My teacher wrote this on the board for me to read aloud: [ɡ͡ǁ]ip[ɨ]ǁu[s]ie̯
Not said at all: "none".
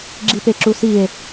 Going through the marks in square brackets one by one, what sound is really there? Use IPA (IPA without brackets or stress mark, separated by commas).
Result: ɡ͡ǁ, e, s